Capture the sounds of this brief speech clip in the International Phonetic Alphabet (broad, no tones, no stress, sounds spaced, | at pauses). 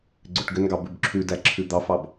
ɡ͡ǀ ʏ ʈ ɡ ʏ n ɡ ɑ b ʉ b ǁʰ ʉ d æ ǁʰ ʉ d̪ ɑ f ɑ b